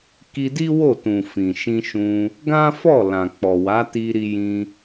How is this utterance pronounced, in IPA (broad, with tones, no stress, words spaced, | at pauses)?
ki˧di˦ wo˦˨tũ˨ fĩ˨ʃĩ˧ʃũ˧ | ɡã˦ fɔ˦˨lã˨k͡pɔ˨wa˨˦ ti˧ɾi˧jĩ˧